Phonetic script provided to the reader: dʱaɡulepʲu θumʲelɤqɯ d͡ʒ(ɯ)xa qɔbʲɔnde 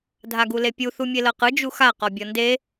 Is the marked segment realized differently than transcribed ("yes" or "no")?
yes